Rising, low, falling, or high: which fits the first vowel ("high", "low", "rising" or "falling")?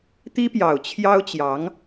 high